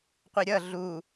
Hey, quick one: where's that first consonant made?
uvula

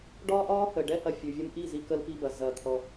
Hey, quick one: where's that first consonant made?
retroflex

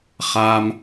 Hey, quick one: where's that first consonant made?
uvula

